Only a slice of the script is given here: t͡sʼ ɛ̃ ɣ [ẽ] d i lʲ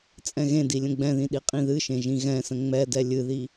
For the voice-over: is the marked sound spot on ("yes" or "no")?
yes